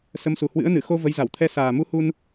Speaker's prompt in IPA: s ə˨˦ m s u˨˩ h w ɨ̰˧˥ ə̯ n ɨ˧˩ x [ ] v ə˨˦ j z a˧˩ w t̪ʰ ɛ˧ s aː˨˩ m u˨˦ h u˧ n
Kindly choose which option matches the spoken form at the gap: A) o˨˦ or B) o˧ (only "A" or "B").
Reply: B